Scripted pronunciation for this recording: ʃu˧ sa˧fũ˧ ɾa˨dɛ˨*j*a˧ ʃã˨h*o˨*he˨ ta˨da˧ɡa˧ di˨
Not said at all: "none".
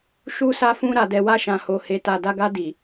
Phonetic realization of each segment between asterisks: w, o˨

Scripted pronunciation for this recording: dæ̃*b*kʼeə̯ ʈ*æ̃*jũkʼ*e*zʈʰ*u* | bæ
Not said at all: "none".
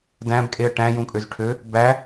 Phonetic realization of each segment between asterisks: b, æ̃, ø, ø

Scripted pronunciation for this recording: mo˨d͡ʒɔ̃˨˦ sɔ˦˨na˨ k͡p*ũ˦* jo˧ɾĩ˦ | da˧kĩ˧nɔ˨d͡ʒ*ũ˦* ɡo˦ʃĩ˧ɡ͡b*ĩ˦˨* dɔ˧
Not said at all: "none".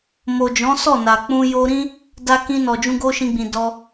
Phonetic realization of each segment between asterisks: ũ˧, ũ˧, ĩ˨

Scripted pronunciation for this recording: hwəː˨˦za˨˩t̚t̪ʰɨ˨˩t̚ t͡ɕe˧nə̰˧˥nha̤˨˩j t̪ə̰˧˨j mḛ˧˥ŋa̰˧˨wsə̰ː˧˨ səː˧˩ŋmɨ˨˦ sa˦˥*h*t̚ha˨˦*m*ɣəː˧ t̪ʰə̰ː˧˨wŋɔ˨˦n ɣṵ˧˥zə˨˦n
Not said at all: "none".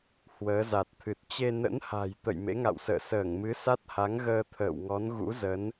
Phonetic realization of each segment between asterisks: none, ŋ

